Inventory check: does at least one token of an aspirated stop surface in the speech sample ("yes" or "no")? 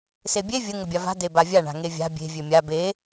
no